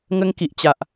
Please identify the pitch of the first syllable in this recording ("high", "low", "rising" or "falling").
high